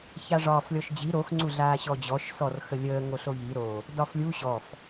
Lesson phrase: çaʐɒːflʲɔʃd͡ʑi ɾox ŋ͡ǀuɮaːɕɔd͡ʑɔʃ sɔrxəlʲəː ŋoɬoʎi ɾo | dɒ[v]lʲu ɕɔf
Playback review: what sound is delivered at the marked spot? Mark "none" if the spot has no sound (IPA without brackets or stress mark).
f